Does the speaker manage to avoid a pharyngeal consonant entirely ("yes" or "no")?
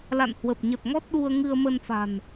yes